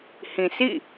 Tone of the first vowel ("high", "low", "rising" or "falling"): low